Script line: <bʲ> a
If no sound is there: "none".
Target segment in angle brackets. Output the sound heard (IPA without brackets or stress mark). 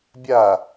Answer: bʲ